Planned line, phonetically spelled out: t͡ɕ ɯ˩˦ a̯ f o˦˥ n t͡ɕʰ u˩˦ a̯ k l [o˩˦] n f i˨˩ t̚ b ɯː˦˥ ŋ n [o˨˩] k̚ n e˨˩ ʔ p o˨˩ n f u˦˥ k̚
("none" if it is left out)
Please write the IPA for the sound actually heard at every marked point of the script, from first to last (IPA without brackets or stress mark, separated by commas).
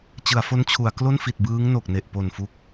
o˥˩, o˨˩